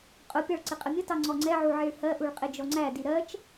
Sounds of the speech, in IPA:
qʼ ʊ pʲ ɑ ɭ ǀ ɪ qʼ ə mʲ ə t ɑ ŋ͡ǀ ɔ ŋ͡ǀ ɛ ʕ u ʕ i ɭ h ɜ ʔ u ɭ qʼ ɪ d͡ʒ ɔ ŋ͡ǀ æ d i ɾ ɜ t͡ʃ

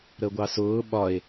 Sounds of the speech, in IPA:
ɾ ə ɡʷ ɑ s ʊː ɓ ɒ e̯

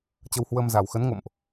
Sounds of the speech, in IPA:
t͡ɕ ə˧ w h w ə˧ m z a˨˩ w x ə˨˦ n ŋ o̰˧˨ m ʔ

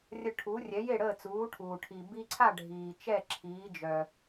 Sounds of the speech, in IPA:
rʲ ə˧ ʈʰ u˩˥ rʲ ɛ˩˥ j e˥˩ ɽ əː˥˩ t͡s uː˩˥ ʈʰ uː˩ ʈʰ i˩ b i˧ ǀʰ a˥˩ ɖʱ iː˩ t͡ʃ ɛ˥˩ ǁʰ iː˩˥ d͡ʒ œ˩

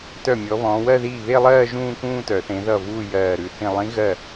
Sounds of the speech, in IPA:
t œ˥˩ mʲ ɔ˨˥ β ɔ̃ː˨˥ w ɜ˥˧ ð iː˥˩ β e˥˧ lˠ ɜː˥˧ ʒ ũː˥˧ k ũː˥˧ t œ˨˩˦ θ ẽ˨˥ ð ʌ˥˩ v uː˥˧ j ɜː˧˩ ɾ ʉ˧˩ θ ĩ˧˩ lˠ ĩ˨˥ ɣ ɜ˥˩

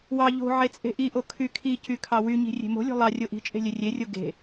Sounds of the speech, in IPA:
w ɑ ʎ o̤ ʕ e t͡sʼ e̤ ʔ i ʔ o kʰ y kʰ i c y kʰ ɑ w y ɲ i̤ rʲ e̤ m o̤ lʲ o̤ lˠ ɑ rʲ o ʔ i̤ t͡ʃʼ e̤ lʲ ø rʲ e rʲ o ɡ e̤

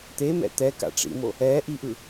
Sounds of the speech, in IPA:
t̪ e m ɛ̰ t̪ ɛ k a̰ ʈ͡ʂ ḭ m o | ɛ ʔ i ʔ ɯ

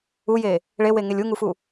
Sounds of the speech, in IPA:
u j e | ɭ e w e ŋ e lʲ u ŋ u f u

